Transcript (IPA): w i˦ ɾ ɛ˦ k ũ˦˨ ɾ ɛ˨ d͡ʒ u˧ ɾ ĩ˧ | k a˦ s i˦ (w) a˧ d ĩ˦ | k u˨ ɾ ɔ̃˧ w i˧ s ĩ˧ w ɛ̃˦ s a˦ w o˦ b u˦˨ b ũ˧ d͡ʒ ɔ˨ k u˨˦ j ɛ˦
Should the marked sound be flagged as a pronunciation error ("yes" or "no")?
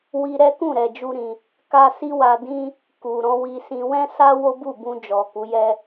no